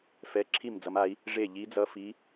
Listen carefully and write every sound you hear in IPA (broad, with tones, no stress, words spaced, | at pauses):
fɛ˧˥˧ǁʰi˥˨md͡zʌ˧˥ma˧˥i̯ | ʐe˥˨ ʎi˧˥d͡zʌ˧˥˧fi˧˥